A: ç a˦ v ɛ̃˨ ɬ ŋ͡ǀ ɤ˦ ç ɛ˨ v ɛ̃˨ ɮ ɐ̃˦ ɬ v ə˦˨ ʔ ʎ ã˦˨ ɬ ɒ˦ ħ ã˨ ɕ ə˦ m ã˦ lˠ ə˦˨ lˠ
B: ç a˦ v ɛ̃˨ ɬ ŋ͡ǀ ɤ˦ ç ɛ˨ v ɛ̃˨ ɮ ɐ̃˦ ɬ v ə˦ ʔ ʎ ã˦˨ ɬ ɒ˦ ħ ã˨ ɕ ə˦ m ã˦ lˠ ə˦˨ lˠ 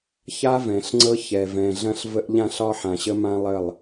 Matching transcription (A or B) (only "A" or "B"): B